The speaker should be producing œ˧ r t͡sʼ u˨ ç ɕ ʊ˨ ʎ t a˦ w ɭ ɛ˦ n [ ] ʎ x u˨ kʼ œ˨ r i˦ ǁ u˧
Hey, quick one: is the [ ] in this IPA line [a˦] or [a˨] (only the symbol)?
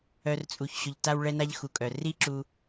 a˦